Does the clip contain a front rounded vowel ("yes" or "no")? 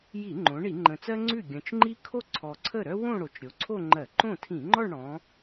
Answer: yes